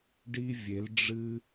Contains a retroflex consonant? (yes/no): yes